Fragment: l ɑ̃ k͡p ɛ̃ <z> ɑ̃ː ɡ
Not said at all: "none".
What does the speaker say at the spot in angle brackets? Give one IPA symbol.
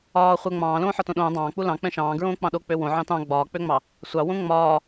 ʃ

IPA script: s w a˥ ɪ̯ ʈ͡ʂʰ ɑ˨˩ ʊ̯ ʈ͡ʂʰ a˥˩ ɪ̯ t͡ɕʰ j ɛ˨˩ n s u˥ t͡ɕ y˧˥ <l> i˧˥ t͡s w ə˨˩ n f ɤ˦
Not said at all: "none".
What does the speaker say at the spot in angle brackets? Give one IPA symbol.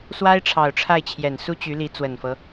l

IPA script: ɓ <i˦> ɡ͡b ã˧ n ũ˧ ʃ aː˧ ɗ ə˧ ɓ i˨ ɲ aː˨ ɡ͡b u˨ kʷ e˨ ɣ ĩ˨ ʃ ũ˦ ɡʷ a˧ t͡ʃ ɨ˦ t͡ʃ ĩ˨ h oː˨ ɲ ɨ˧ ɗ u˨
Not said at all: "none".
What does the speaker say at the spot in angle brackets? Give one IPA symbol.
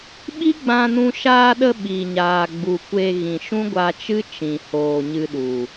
i˦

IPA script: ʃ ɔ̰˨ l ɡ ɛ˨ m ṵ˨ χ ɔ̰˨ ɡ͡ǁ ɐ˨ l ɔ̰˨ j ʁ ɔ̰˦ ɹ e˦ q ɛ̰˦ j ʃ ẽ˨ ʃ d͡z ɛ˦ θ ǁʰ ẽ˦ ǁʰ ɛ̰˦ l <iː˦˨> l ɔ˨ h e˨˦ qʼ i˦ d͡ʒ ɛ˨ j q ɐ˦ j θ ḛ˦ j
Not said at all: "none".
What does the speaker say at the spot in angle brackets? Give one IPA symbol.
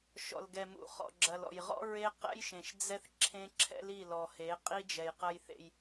i˦˨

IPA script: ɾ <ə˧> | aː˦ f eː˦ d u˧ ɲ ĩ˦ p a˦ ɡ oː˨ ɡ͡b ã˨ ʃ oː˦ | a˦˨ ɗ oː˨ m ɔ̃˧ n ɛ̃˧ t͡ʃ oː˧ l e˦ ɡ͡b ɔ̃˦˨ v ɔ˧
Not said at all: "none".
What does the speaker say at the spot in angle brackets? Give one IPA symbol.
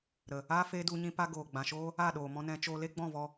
ə˨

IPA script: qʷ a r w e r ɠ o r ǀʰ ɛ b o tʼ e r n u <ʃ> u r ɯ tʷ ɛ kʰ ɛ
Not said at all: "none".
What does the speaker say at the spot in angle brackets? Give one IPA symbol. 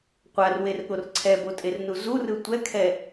z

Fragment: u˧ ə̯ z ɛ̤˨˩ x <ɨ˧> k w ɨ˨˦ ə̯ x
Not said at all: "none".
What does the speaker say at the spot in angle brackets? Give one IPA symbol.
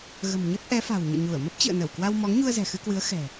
ɨ˧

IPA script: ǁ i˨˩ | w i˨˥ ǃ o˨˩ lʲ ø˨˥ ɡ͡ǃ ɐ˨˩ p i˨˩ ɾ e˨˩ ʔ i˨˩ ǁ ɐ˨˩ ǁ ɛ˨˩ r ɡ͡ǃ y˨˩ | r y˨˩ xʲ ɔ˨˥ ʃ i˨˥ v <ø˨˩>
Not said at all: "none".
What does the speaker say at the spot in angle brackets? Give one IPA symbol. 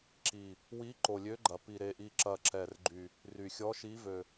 ø˨˩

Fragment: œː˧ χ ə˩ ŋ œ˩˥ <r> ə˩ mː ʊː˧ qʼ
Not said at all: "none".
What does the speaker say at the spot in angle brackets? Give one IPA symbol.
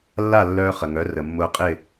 r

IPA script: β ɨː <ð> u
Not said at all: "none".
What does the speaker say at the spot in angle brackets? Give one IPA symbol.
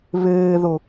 ð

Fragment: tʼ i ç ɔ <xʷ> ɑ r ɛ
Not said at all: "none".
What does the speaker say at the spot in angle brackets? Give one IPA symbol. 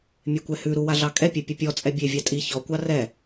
kʷ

